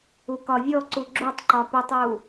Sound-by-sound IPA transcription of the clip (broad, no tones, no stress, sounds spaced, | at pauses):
u k ɒ vʲ ɔ ǀ u ɡ͡ǁ u tˤ ǃ ɒ p u tˤ u